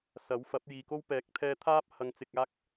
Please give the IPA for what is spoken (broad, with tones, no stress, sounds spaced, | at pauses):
s ɐ˨˥ w f ɐ˨˥ p̚ j iː˨ k o˥ w p ɛː˨˥ k̚ t̪ʰ ɛː˧ t̪ʰ aː˥ p̚ h ɐ˧ ŋ t͡s ɪ˧ k̚ aː˥ k̚